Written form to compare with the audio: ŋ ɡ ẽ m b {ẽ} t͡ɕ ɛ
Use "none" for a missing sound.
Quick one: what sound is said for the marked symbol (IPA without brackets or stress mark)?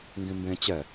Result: ẽ